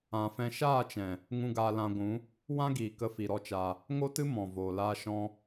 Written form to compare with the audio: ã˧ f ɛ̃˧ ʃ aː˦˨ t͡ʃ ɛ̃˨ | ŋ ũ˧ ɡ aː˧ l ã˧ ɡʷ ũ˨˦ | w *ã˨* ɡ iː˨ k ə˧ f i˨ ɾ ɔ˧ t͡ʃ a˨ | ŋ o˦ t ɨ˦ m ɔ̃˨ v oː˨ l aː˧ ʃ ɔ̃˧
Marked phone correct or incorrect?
incorrect